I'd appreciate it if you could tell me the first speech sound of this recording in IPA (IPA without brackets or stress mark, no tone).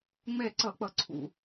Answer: ŋ͡m